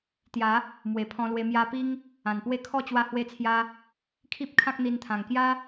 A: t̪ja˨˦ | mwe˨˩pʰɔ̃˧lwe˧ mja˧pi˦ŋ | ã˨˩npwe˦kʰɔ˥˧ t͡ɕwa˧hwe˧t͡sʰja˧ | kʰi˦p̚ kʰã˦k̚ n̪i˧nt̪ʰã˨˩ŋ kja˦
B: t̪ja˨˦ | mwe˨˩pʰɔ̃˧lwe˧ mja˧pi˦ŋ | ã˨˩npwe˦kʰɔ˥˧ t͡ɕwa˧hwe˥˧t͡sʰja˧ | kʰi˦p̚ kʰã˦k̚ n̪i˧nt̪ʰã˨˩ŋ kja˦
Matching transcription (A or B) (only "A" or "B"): A